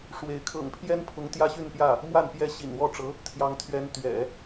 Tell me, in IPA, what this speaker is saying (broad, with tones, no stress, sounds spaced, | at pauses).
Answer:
ʂ w e˧˥ ɪ̯ kʰ ɤ̰˨˩ ŋ pʰ j ɛ˥ n pʰ ʊ˧˥ ŋ t̪ j ä˥ ɕ y˥˧ n p j ä˥˩ | m w a˥˩ n p j ɛ˥ ɕ ḭ˨˩ n w ɔ˥ ʈ͡ʂ ɤ˧˥ | t̪ʰ j ɑ˧˥ ŋ t̪ʰ ɥ ɛ˧˥ n t̪ ɥ ɛ̰˨˩˦